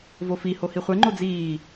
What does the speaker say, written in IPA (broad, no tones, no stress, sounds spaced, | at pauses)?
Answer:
v o f i h o h i χʷ ɛ ŋ͡ǃ o d͡z iː